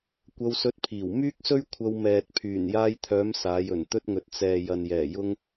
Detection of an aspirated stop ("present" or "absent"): present